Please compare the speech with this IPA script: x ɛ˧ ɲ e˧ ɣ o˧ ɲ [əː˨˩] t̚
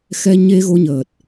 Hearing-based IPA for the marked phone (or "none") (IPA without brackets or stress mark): əː˨˩